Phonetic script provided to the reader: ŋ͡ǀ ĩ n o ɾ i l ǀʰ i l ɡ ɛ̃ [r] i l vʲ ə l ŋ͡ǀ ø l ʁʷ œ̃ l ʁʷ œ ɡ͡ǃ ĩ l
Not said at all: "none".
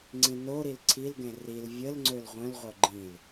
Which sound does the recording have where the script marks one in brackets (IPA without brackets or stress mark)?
r